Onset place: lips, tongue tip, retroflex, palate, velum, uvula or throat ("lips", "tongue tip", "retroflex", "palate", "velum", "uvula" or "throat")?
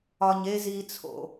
palate